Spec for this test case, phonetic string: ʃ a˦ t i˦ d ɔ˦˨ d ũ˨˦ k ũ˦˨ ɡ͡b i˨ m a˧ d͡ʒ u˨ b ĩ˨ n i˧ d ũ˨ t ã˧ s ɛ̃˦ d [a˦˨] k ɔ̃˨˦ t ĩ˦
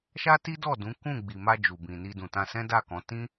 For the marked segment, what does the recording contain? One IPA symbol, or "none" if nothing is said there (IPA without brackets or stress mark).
a˦˨